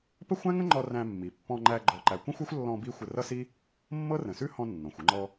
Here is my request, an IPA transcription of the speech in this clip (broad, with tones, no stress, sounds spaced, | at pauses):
p ə˥ xʷ æ̃˥ ŋ ə̃˥ ŋ͡ǃ ɔ˧ r æ̃˧ mː i˩ pː ɔ̃˧ ŋ͡ǃ æ˧ ɡ͡ǃ ɔ˧ ǃ æ˧ kʷ ə̃˥ xʷ ɤ˥ xʷ lː ɔ̃˧ b i˥ xʷ ə˧ r ʌ˥ s i˥ | mː ɤ˥ r ə̃˩ s ʉ˥ h ɔ̃˧ nː ɔ̃˩ xʷ ə˧ ŋ͡ǃ ɔ˧